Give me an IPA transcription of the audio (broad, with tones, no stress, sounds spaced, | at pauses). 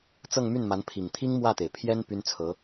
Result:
t͡s ɤ˥˧ ŋ m y˥˩ n m a˧˥ n pʰ i˨˩ ŋ t̪ʰ i˥ ŋ m w ä˥˩ t̪ e˩ ɪ̯ pʰ j ɛ˥ n p y˥ n t͡sʰ ɤ˧˥